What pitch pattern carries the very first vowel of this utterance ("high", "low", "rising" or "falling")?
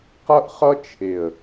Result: high